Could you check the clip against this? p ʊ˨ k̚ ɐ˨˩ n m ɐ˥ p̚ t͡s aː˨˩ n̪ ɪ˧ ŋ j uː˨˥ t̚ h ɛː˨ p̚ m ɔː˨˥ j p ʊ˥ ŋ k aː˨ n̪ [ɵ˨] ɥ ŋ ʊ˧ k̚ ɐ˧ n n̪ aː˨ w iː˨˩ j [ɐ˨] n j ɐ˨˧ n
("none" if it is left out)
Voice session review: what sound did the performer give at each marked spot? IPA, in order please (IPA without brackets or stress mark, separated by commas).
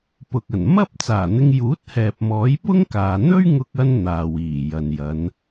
ɵ˥, ɐ˨